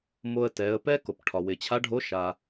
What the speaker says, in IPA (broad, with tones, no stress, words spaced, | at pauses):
mo˧ə̯tɛ˩˧ə̯ pɛ˥ko˩p ʈʰɒ˩ wɪ˩t͡ɕʰa˧˥ɖʱo˧˥ʃa˩